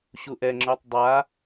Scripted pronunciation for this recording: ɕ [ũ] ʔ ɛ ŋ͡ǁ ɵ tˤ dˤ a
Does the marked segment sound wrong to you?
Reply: yes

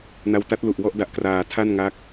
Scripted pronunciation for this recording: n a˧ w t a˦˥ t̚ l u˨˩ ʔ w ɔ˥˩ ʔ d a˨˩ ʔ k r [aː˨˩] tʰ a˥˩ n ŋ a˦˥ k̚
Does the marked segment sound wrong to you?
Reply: yes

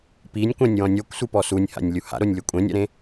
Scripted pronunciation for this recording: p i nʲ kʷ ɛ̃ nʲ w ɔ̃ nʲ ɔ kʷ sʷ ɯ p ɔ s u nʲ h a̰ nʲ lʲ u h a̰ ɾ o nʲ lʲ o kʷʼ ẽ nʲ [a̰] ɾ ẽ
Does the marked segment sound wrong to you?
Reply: no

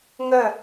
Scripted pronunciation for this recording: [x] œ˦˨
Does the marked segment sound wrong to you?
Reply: yes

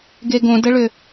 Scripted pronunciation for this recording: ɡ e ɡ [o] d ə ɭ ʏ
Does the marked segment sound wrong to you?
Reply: yes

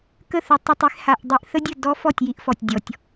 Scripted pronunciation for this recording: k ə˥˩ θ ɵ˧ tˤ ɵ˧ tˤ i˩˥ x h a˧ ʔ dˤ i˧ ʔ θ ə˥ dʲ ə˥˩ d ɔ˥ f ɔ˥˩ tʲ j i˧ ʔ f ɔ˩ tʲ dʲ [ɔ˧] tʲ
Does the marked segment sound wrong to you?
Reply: yes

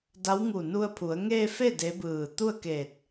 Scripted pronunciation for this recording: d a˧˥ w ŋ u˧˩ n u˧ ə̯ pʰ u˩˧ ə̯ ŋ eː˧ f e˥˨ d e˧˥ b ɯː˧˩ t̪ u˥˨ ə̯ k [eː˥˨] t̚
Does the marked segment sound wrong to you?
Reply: yes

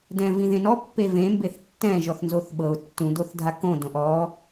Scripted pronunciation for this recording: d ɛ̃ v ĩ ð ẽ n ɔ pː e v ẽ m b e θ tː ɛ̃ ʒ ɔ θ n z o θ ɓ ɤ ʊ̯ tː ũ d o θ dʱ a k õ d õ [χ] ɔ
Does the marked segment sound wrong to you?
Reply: yes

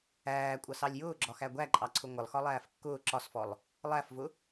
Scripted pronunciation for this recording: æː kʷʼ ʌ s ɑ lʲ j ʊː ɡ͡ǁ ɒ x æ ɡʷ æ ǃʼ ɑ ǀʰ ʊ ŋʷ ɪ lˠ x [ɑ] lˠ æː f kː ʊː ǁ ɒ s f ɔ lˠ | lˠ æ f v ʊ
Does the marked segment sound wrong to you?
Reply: yes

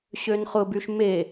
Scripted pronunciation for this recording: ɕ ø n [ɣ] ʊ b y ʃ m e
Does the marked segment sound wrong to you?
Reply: yes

